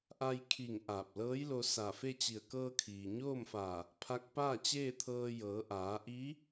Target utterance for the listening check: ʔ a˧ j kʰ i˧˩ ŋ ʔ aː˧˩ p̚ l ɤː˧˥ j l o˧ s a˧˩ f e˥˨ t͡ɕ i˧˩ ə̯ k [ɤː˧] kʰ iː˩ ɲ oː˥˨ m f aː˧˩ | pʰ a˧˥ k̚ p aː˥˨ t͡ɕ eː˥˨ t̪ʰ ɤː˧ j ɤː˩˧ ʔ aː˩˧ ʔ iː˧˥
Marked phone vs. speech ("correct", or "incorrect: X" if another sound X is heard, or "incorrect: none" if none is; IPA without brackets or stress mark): correct